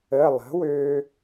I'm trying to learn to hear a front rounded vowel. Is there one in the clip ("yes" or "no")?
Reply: yes